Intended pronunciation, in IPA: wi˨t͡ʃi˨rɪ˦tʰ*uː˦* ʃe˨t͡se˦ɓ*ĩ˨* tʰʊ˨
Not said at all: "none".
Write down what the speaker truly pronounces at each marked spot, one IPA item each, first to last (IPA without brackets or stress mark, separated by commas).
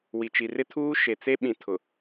uː˦, ĩ˨